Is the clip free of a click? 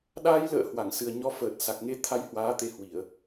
yes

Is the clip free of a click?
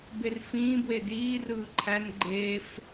no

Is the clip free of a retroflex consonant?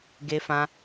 yes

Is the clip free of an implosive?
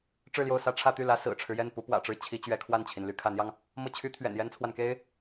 yes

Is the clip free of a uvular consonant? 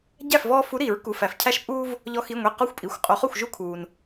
no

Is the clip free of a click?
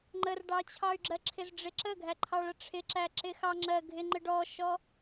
no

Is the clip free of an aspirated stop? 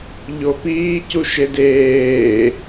yes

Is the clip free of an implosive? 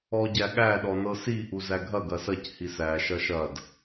no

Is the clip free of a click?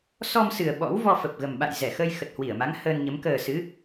yes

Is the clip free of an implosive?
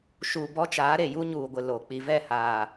yes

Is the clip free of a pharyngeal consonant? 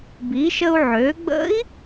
no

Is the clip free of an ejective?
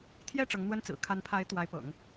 yes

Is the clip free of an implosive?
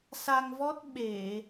no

